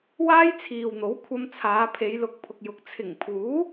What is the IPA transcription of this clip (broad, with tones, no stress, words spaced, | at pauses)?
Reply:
waː˥jt͡sʰiː˨wn̪o˨˥w kʷʰɐ˧mt͡sʰaː˨˧ pʰe˨˧jlʊ˨˥k̚pʰʊ˨k̚jʊ˨˥k̚ t͡sʰɪ˨˩ŋpʰuː˨˥